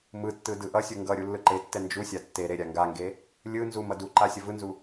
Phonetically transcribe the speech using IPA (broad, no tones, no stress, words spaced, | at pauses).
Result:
mɯtːɯ dɯʔʌsʲu ŋɡʌ ɾʲulːɯǃetːɛ nd͡ʒusʲa tːe ɾeɾʲaŋɡaŋɡe | lʲɯ nzumʌ duǃa sʲʌvɯnzu